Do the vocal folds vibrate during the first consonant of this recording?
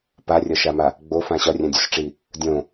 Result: no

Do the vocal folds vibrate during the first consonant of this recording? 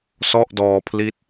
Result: no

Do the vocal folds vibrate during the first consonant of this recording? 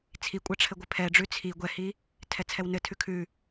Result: no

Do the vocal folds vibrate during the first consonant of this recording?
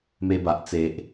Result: yes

